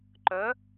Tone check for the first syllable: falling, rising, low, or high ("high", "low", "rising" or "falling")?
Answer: rising